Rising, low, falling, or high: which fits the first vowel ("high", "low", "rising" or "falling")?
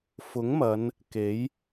rising